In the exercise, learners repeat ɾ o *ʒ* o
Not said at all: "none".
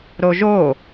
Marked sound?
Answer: ʒ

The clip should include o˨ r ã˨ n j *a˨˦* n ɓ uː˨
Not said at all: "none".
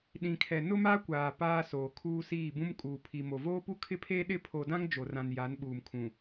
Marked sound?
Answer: a˨˦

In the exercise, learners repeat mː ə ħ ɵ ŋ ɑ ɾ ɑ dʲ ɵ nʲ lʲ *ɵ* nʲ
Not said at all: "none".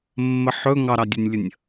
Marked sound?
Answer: ə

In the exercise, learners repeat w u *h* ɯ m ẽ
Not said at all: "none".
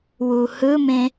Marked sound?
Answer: h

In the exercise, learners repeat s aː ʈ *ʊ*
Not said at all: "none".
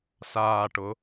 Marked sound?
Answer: ʊ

